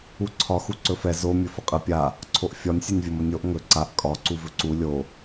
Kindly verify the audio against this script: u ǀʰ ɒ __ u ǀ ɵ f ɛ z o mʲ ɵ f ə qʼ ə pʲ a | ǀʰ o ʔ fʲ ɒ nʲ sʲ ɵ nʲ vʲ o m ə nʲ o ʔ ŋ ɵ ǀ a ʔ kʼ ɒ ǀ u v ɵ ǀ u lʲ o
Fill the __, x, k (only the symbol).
x